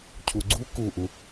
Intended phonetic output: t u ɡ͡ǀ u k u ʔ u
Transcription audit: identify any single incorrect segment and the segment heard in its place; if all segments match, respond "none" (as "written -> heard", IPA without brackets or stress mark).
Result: t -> cʰ